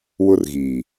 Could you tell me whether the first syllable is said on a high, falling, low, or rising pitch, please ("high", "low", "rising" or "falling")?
high